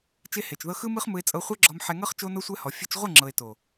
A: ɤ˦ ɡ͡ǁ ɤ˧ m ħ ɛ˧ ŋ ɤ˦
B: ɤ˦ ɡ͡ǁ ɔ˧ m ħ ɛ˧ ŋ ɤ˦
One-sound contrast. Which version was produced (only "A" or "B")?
B